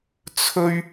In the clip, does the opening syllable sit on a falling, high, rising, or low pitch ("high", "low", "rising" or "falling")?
high